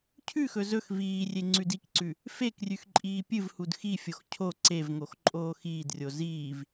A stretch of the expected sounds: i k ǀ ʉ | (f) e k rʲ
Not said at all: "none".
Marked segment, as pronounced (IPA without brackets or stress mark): f